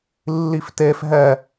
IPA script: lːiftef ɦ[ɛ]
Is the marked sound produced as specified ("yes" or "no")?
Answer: yes